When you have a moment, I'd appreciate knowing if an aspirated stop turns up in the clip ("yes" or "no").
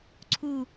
yes